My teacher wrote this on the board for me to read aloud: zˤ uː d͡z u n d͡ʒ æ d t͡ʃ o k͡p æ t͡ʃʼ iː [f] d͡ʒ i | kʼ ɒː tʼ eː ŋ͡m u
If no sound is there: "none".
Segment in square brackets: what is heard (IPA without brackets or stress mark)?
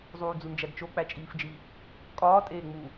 f